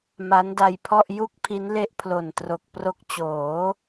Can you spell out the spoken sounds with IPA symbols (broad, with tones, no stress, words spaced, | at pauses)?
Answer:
ma˦˥nda˧jpʰɔ˥˩ʔ ju˥˩k̚pʰi˦˥n le˦˥ʔpʰlo˨˩ntro˨˩k̚pro˦˥k̚ t͡ɕoː˩˦